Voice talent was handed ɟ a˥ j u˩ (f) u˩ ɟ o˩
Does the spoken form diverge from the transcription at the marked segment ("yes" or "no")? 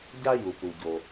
yes